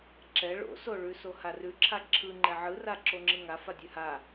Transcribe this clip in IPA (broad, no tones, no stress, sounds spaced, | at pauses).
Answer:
ǁ ɛ ɭ o̰ s o ɭ ʉ s o h a r ʉ ǁʰ a ǁʰ ɯ ŋ͡ǃ ɛ ʕ ɯ r a ǁ o ŋ͡ǁ ɯ ŋ a f a dʲ ʉ h a